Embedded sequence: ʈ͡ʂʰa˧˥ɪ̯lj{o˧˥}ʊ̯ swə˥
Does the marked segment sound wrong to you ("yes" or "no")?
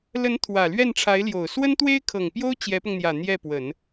yes